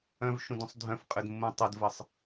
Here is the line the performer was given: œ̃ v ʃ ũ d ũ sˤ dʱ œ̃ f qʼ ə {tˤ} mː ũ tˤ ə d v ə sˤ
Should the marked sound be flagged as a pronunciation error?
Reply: yes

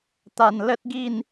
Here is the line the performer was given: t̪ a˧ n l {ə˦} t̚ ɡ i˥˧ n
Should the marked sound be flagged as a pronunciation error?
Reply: no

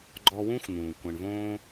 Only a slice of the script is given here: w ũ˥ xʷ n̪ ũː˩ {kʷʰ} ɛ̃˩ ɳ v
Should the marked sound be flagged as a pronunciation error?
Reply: yes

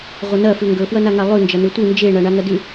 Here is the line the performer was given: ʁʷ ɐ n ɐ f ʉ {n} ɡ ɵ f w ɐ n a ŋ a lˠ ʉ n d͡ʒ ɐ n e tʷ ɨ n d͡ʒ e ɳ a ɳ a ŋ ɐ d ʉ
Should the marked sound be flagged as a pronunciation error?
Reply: yes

